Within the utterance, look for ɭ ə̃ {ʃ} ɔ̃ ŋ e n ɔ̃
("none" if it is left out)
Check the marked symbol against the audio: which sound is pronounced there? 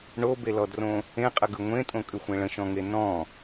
ʃ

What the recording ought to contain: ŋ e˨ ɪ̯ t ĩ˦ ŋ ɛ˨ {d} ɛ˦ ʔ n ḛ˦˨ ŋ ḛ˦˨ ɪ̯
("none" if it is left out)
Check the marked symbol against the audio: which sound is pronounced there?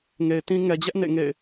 d͡ʑ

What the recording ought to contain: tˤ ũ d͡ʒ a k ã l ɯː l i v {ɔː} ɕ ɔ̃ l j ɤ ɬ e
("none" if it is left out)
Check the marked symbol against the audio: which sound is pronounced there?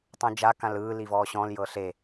ɔː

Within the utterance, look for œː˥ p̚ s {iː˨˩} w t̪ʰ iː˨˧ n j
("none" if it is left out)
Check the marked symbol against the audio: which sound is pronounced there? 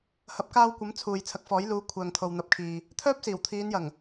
iː˨˩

